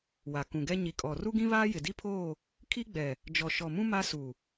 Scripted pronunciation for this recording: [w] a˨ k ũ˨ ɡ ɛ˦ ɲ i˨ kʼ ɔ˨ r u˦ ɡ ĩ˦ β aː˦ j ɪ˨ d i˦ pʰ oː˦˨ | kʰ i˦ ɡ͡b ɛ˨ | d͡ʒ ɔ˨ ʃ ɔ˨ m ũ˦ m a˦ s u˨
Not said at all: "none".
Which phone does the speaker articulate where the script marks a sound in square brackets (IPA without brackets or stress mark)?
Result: w